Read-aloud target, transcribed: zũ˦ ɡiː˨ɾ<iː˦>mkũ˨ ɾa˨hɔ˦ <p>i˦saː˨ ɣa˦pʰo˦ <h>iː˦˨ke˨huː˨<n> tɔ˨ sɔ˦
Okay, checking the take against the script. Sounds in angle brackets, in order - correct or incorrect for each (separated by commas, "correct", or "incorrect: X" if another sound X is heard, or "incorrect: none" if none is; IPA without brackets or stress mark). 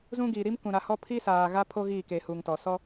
incorrect: i˦, incorrect: pʰ, incorrect: ɣ, incorrect: ŋ